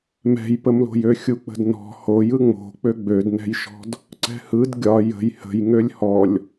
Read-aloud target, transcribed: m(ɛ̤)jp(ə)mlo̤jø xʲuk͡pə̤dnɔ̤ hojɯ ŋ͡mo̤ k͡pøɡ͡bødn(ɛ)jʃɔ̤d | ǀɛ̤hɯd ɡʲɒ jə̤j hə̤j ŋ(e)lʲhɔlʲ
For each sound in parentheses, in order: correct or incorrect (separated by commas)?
correct, correct, incorrect, incorrect